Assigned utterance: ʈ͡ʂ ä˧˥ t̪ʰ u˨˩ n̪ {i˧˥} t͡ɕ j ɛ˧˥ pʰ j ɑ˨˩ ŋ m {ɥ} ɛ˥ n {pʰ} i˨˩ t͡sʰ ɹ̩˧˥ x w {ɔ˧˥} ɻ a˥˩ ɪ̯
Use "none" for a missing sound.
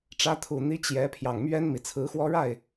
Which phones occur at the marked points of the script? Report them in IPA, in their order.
i˧˥, ɥ, m, ɔ˥

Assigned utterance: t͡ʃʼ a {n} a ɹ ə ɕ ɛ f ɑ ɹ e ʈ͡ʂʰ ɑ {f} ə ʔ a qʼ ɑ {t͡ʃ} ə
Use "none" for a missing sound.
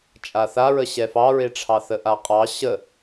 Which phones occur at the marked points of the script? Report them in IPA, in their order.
θ, θ, ɕ

